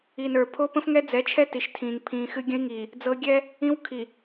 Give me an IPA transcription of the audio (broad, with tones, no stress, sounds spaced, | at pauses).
i˨ n ə˞˨ pʰ o˦ p ə̃˦ f ŋ ɛ˦ d͡z ɛ˨˦ t͡ʃʰ ɛ˦ t i˨ ʃ tʰ ĩː˨ ŋ pʰ ĩː˨ x ɨ˦ ɡʲ ə̃˦ i̯ ŋ iː˨ | d͡z ɤ˦ ɡʲ ɛ˦ | ĩ˦ w kʰ i˨